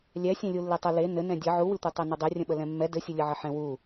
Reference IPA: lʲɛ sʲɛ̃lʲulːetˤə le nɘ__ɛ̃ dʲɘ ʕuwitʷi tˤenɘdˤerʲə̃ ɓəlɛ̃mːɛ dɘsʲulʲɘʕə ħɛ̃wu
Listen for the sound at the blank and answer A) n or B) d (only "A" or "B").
A